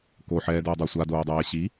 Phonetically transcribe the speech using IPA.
k o ħ ɛː d oː dˤ o sʷ a d oː dˤ ɛː ɕ i

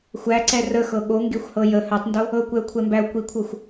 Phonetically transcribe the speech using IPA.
xʷ æ ǀ ɛ r ə x ɤ ɠ o ŋ ɡ e xʷ h ɤ j ə h ɛ tˤ n d o | ɤ kʷ ɛ ʊ̯ kʷʰ ɛ m b æ ʊ̯ kʷ i kʷʰ ɤ xʷ

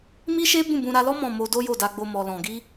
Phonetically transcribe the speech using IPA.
m i˦ ʃ e˦ b ũ˦˨ b ũ˧ ɾ a˧ l ɔ˦ m ɔ̃˦˨ m o˧ d o˦ j o˦˨ d a˧ ɡ͡b o˧ m ɔ˨ l ɔ̃˨ ɡ i˧

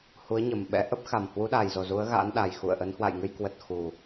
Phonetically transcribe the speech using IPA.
h u˨˦ ə̯ ɲ ə˨˩ m ɓ ɛ̰˧˥ ʔ ə˦˥ p̚ x a˨˩ m h w u˨˦ ɗ a˨˩ j z o˨˩ z u˨˦ ə̯ ɣ a̰˧˥ n ɗ a˨˩ j x ṵ˧˨ ə̯ ʔ ə˨˦ n h w a̰˧˨ j ŋ ɨ˧ j k w ə˨˩ t̚ x u˨˩

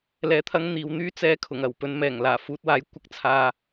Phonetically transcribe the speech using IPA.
l ɛː˨ t̪ʰ ɐ˧ ŋ n̪ iː˨ w n̪ yː˥ t͡s ɛː˧ kʰ ʊ˨˩ ŋ ɐ˨˩ w p ɵ˨˧ n m ɛː˨˩ ŋ l aː˨˩ f uː˨ t̚ w aː˨˥ j kʷ ɐ˧ k̚ t͡sʰ aː˨

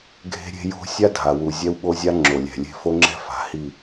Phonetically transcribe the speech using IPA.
ɡʱ e̤˦ ɾʲ e̤˦ j o̤˦ sʲ a˦ dʱ a˨ w u˨ zʲ ɛ˦ w ɓ o˦ zʲ a˦ ŋ͡ǁ o˨ lʲ ɛ̤˨ lʲ e̤˦˨ f o˦ ŋ͡ǁ ɛ̤˦ f a̤˨ h i˦˨

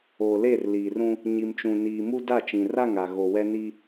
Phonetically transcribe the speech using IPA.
oː˨ l e˦˨ r l iː˨ r ũ˦ | ɲ i˨ m t͡ʃ ũ˨ n iː˨ m u˦ d a˦˨ t͡ʃ ĩ˨ r a˦˨ ŋ a˨ ɣ o˨ w ɛ˦ n i˦

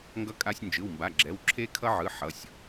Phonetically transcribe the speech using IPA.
ŋ ɡ ʌ˧ kʼ a˧ sʲ n d͡ʒ ɯ˩˧˩ w m b a˩˧˩ ɡ͡ǁ ɛ˩˧˩ w ǁʰ e˧ kʰ ʌ˧ ʕ ɯ˩˧˩ ħ ʌ˩˧˩ sʲ

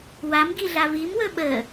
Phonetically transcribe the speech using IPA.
w a m ɡ i ɮ a v i m w ɵ ɓ ə

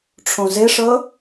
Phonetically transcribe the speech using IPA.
ʈ͡ʂʰ õ z e ʂ ɤ

